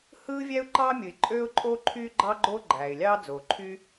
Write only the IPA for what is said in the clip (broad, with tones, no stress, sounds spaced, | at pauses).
h ɯː˥ vʲ æ˥ ʊ̯ ǃ ɑː˥ mʲ ɯ˩ ɪ̯ ǃʼ øː˥ ʊ̯ ǃʼ oː˥ ǃʰ yː˥ ɡ͡ǃ ɑ˥ ɡ͡ǃ oː˥ ɡ͡ǃ æː˩ ɪ̯ lʲ ɑː˥ d͡z oː˩ ǃʰ y˥